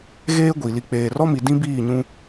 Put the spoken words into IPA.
ɣeː˦ɡʷi˨ li˨k͡peː˨rɔ˦mi˨ dĩ˦biː˦˨ɲũ˦

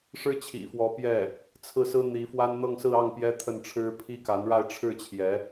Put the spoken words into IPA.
ʂɻ̩˥t͡ɕʰḭ˨˩fwɔ˧˥ pjɛ˥˩ | t͡sʰɹ̩˥˩sɹ̩˥ n̪i˧˥fwa˥n n̪ɤ˥˧ŋsɹ̩˥˧ɑ˥˩ŋ pjɛ˥t̪ʰə˥˩nʈ͡ʂʰɻ̩˥ pʰi˥ka˧˥nɻa˥˧ɪ̯ ʈ͡ʂʰɻ̩˥˩t͡ɕʰjɛ˧˥

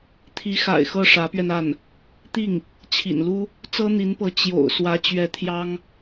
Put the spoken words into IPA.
t̪ʰi˧˥xa̰˨˩ɪ̯ xɤ˥˩ʂä˧˥pɥɛ˧na˥˩n | t̪i˥˩ŋ | t͡ɕʰḭ˨˩nlu˥ | t͡sɤ˥n̪i˧˥npɤ˧˥ t͡ɕjo̰˨˩ʊ̯ swä˧˥t͡ɕɥɛ˧˥ t̪ʰjɑ˥ŋ

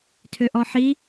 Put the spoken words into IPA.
tʰøʔɔħi

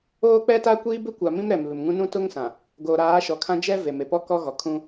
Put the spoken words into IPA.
oː˦k͡pɛ˦ta˦ kʷiː˦bɪ˦kʷa˨mĩ˦m ɾɛ˨mβɪ˨mŋũ˦ nũ˦tʊ˦ŋsã˨ | ɡoː˨ɾaː˨˦ʃɔ˨kʰã˦ d͡ʒɛ˦ ve˨me˨pɔ˦ kɔ˦ɣɔ˨kʰũ˦

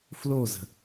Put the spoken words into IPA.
flozə̤

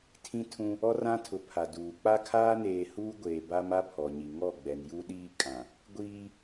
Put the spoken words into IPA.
tʰĩ˦ tʰũ˦ | ɔ˦rã˦tʰʊ˨ pʰa˨duː˨ k͡pa˦kʰaː˦neː˨ huː˦ ɡʷeː˨ ba˦m a˦ pʰɔ˨ɲi˨ ŋɔ˦˨ɡ͡bɛ˨nju˦ɗiː˦ kʼã˨ | ɡʷiː˦

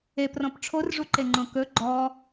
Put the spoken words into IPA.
eprɔ̃p ʈ͡ʂʰorʐuǃeŋ͡ǃõ kɵ ɡ͡ǃɔ

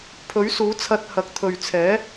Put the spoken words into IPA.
pʰɵ˨˥ɥsuː˨˥t͡sʰɐ˧t̚hɐ˨˥k̚ t̪ʰɵ˨ɥt͡sʰɛː˨˥

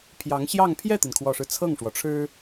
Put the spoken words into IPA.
pʰjɑ˧˥ŋɕjɑ˥˧ŋ pʰjɛ˥˩t̪i˩nkʰwɔ˨˩ʂɻ̩˦ t͡sʰɤ˥˩ŋʂwɔ˩ʈ͡ʂʰɻ̩˥

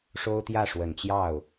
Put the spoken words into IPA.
ʂo˥ʊ̯t̪jä˥˩ ʂwə˨˩nt͡ɕjɑ˥˩ʊ̯

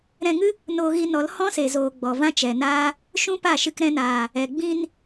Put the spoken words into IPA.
ɾɛ̃˧ŋɨ˦ | noː˧ɣi˧nɔ˨˦l hɔ̃˦se˨zoː˨ ɡ͡bɔ˨vã˦t͡ʃɛ˨naː˦ | ʃũ˦pa˦˨ʃɨ˧k ɾɛ̃˧naː˨ | ɛ˨ ɡ͡bĩ˧n

